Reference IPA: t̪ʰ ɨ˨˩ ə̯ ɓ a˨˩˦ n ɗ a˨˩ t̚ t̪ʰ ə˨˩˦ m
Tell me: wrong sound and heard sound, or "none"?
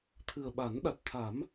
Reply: ə˨˩˦ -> a˨˩˦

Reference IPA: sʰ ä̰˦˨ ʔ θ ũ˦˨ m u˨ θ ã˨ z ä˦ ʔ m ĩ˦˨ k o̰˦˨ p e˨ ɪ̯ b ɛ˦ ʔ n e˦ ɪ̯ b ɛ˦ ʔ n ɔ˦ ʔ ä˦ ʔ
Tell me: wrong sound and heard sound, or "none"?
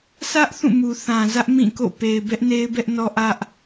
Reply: ä̰˦˨ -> ä˦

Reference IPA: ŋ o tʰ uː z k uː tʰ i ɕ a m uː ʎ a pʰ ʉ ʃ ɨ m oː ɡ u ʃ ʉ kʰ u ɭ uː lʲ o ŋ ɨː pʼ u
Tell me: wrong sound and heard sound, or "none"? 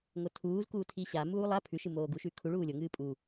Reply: ʎ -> lˠ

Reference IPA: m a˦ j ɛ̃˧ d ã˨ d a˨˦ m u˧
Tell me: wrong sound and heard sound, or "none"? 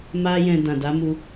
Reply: none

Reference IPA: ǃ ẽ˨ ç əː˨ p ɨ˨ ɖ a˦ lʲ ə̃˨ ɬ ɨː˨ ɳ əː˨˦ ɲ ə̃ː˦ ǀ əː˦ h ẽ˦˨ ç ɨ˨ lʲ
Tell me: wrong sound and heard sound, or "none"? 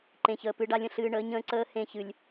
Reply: none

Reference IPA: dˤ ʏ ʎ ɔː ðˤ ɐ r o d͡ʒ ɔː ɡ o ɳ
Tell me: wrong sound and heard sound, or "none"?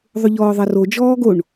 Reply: dˤ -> ðˤ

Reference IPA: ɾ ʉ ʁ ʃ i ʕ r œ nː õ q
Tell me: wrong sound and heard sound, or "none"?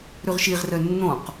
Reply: ʕ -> ʁ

